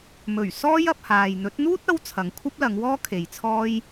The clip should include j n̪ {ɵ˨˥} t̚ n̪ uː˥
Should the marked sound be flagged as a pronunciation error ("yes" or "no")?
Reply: no